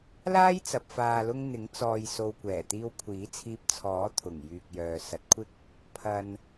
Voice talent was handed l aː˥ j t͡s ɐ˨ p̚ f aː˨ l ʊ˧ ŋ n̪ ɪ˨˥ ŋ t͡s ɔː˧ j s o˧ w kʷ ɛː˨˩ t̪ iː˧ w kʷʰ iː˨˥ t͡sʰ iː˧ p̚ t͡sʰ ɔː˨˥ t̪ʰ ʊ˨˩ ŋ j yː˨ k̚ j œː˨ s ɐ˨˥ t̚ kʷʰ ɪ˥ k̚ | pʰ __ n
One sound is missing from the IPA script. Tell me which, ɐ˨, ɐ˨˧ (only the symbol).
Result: ɐ˨